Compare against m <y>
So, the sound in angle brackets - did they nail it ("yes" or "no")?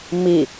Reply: no